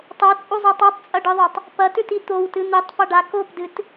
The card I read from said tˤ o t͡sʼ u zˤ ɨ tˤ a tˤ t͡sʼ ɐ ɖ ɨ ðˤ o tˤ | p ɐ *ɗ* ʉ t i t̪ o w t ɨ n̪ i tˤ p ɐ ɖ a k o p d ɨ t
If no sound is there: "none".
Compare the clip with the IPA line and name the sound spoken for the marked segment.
t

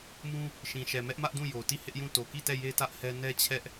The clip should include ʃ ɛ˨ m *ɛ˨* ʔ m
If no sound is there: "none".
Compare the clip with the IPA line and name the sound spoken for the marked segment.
ɛ˦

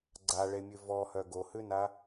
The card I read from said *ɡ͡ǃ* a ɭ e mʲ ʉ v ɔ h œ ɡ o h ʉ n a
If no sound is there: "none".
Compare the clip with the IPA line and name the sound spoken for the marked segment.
ɡ͡ǀ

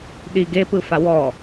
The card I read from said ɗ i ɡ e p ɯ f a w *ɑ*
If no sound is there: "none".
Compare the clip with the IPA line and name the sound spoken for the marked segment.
ɔ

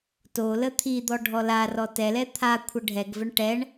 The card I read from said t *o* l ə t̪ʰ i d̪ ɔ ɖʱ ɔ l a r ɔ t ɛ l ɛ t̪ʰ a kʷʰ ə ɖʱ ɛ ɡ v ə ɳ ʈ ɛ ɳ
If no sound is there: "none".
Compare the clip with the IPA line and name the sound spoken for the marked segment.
o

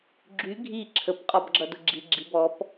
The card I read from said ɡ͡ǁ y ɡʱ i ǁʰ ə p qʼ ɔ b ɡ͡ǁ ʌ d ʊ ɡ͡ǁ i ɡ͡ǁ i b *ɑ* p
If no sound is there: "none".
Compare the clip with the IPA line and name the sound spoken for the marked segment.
ɔ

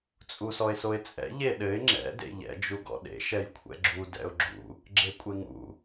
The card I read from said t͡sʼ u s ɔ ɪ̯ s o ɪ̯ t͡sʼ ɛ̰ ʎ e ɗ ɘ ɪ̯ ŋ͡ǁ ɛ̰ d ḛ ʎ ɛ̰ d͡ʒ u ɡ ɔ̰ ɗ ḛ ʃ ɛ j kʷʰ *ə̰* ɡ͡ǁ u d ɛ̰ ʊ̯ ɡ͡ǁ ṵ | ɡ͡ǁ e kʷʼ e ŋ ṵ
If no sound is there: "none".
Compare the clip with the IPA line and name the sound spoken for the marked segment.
ɛ̰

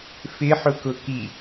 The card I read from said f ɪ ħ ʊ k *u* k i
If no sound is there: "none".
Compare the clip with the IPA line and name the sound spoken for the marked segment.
ʊ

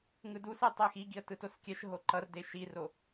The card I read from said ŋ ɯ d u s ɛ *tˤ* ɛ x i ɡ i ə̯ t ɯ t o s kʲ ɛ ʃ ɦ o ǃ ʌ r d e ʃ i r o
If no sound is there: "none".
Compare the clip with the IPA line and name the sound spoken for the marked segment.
tˤ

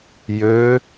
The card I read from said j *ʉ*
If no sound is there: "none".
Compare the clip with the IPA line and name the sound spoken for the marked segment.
ø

